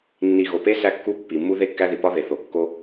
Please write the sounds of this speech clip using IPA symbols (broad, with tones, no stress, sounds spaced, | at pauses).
nː i˨ ɣ o˨ p e˦ s æ˦ kː u˦ pː i˨ mː u˦ ð e˦ kː æ˦ ð i˨ p ɒ˦ ð e˨ θ o˨ kː o˦